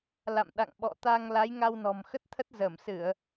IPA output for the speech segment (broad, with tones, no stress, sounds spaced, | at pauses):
l a̰˧˨ m ɗ a̰˧˨ ŋ ɓ ɔ̰˧˨ t̪ a˧ ŋ l a˨˦ j ŋ a˧ w n ɔ̤˨˩ m x ə˦˥ t̚ t̪ʰ ə˦˥ t̚ z əː˧˩ m s ɨ˧˩˨ ə̯